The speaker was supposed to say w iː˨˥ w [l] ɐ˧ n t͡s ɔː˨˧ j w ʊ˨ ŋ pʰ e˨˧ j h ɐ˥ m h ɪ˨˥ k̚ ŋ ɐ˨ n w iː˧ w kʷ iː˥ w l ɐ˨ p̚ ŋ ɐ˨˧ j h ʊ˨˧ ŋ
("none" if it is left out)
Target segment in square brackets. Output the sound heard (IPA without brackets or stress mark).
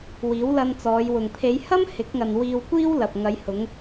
l